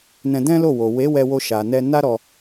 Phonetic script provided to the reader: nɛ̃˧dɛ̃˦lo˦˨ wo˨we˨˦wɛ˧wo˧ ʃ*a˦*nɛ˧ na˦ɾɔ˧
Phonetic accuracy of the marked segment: incorrect: a˨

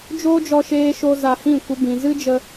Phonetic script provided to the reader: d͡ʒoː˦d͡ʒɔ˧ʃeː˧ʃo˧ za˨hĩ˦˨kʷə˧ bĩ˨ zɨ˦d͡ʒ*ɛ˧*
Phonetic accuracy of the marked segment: incorrect: ə˧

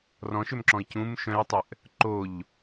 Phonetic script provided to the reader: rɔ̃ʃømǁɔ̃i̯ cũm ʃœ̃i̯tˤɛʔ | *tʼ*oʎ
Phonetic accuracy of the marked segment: incorrect: ǃ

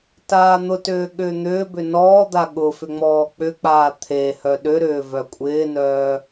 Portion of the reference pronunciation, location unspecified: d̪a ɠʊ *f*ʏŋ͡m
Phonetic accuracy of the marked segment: correct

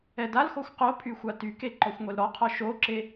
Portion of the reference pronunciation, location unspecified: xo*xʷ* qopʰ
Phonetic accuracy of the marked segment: correct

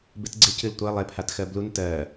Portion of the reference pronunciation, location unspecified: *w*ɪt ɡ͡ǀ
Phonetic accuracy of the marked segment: incorrect: b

